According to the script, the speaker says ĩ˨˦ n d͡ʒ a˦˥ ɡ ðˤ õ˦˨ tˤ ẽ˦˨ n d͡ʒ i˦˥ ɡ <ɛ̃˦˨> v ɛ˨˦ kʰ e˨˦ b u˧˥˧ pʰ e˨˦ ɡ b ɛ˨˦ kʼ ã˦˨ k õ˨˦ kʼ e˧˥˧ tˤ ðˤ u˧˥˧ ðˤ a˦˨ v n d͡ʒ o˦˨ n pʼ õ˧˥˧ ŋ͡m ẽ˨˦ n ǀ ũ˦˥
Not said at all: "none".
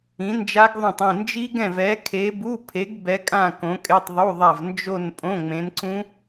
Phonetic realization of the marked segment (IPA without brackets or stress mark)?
ɛ̃˦˨